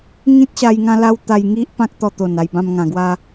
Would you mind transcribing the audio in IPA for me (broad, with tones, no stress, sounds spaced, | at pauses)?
ŋ ĩ˦ t̚ ɕ a˧ j ŋ ã˦ l a˦ w t̪ a˧ j ŋ i˦ ʔ p ã˦ k̚ t̪ ɔ˧ t̪ o˨˩ n a˧ j b ã˦ m ŋ ã˧ ɡ w a˦